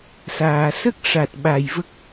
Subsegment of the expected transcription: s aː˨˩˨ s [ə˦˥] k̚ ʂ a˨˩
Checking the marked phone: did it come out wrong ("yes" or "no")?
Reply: no